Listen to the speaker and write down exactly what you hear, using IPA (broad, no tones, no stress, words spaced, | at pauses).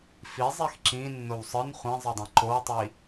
fi zˤixǁĩ nːowsˤɯn χʷɛ̃zˤɯdˤã ǃowtˤi